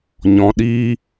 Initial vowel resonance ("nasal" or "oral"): nasal